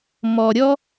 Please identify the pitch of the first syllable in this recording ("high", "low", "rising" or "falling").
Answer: low